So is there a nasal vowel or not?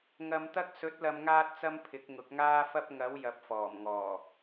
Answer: no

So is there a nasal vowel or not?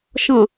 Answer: yes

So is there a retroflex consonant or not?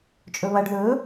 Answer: yes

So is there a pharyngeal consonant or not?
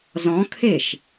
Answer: no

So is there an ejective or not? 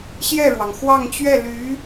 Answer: no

